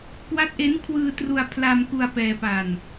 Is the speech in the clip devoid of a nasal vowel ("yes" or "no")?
yes